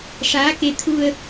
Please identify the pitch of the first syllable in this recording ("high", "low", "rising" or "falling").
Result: rising